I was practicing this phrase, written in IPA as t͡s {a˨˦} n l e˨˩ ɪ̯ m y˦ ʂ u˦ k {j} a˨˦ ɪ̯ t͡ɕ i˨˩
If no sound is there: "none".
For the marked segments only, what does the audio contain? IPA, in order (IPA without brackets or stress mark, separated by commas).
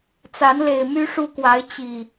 a˨˦, w